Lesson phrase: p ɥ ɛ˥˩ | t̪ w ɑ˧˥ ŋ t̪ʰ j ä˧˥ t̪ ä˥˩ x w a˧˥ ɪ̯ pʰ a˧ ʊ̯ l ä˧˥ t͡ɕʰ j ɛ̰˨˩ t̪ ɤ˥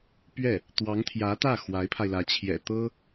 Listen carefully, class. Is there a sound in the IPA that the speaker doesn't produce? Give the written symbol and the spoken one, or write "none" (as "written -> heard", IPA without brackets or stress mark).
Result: ʊ̯ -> ɪ̯